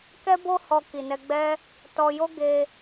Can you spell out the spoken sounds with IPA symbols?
k ɛ˦ b o˦ h ɔ˧ k i˨ n ɛ˧ ɡ͡b ɛ˦ | t ɔ˧ j o˦ ɡ e˧

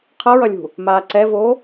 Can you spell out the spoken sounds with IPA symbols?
qʰ ʌ ɹ ʌ lʲ ṳ | m aː ǀ ɛ v o

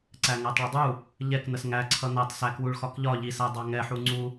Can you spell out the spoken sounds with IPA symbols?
ǀ æ ŋ æ tˤ ɭ ə dˤ u | ʎ ɛ k n ə s ŋ æ ǀʰ ʌ n æ tˤ s æ k w u ɭ x ɒ k ʎ ɒ ʎ i s æ dˤ ɑ ŋ ɛ ħ u ŋ͡ǀ u

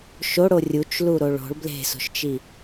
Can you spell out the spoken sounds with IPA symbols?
ʃ o ɽ o rʲ u t͡ʃ l u ɾ o ɭ o̤ ɭ b l e̤ s o̤ ʃ t͡ʃ i

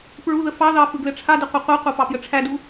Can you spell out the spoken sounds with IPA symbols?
p ɹ u ð ə f ɑ ð ɑ f ɯ ɡ l ɘ ʈ͡ʂʰ a d ɘ qʷ ɘ qʷ a qʷ a p ɑ p j ə ʈ͡ʂʰ æ d u

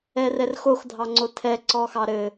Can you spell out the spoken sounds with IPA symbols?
ɛ r ɛ r x o x dʱ ɑ ŋ͡ǀ o tʰ ɛ ǀ ɔ x ɑ ɾ ɘ

